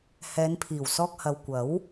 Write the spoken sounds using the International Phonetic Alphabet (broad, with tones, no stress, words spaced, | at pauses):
hɛː˨˧npʰiː˨˩wsɔː˧k̚hɐ˨w kʷɐ˨˥w